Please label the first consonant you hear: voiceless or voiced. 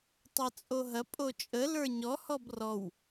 voiceless